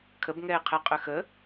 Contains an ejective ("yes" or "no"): yes